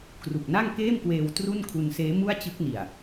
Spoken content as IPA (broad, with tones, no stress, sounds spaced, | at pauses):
k r u˨˩ k̚ n a˥˩ ŋ k eː˥˩ m k w eː˧ w t r u˥˩ n kʰ u˧ n s eː˦˥ m u˥˩ a̯ t͡ɕ ɯ˦˥ k̚ n i˨˩ a̯